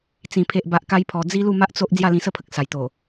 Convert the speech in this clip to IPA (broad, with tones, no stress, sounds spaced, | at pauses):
t͡s ĩ˨˩ pʰ e˨ ʔ b a˨ ʔ k a˧ j pʰ ɔ˨˩ d͡z i˧ l u˥˧ m a˦ ʔ t͡s o˦ ʔ d͡z j a˥˧ l ĩ˧ s ə˥˧ pʰ ə˨ k̚ s a˨˩ j t̪ o˨˩